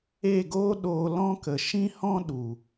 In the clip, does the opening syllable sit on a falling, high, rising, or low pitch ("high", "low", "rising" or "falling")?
falling